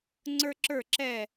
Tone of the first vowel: high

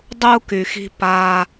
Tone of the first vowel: low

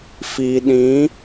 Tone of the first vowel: low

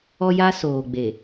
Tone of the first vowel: high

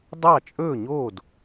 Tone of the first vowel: falling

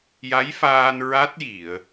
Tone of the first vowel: rising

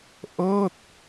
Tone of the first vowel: falling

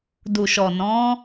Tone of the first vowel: low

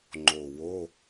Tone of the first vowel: low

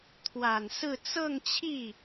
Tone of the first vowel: low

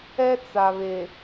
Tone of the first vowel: high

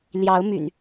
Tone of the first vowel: rising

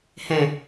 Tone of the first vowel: low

